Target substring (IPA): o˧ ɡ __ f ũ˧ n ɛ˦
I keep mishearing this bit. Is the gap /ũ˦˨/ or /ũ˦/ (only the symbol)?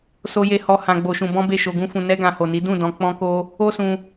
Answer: ũ˦